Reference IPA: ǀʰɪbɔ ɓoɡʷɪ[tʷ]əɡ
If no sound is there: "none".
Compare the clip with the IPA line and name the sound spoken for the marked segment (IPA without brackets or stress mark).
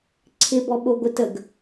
t